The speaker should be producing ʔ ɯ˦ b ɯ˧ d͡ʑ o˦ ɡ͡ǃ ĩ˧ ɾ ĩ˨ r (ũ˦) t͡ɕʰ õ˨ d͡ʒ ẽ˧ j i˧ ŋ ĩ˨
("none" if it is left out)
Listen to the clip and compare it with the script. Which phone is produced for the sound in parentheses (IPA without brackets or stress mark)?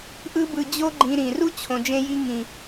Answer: u˦